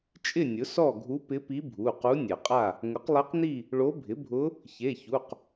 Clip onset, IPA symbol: t͡ʃʼ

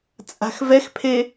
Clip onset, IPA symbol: t͡sʼ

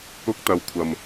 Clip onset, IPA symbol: ʊ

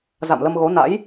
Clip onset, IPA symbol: z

